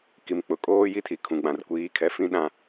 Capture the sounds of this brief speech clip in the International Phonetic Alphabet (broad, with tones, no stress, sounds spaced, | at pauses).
k i˨ m k͡p ʊ˨ kʼ oː˦ j i˦ tʰ i˨ kʰ ũ˨ ɡ͡b ã˨ r kʷ iː˨˦ kʰ ɛ˨ f ĩ˦ ɗ ã˨